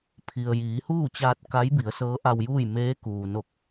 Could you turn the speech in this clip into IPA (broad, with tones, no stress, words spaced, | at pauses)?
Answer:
pʰi˩ə̯ jiː˩˧huː˥˨t͡ɕaː˧t̚ ka˧˥jbi˩˧ə̯ sɤː˧˥ʔa˧wjuː˥˨j meː˧˥ kuː˩no˧˩k̚